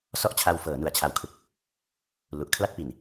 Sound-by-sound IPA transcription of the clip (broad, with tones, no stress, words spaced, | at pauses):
sɔ˥˩ʔt͡ɕʰa˧w fɤː˩˦nu˨˩a̯t͡ɕʰa˨˩wkʰɯ˨˩k̚ | lu˨˩ʔkʰla˥˩t̚pi˨˩n